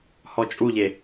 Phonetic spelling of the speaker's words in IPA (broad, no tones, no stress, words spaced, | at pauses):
hɔt͡ʃʼuʎe